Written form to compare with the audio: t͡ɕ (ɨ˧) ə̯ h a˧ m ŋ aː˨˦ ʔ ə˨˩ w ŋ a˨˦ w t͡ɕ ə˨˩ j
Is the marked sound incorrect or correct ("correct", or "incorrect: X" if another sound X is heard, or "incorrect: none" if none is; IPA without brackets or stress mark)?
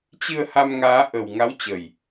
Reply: correct